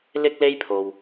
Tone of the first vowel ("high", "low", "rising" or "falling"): high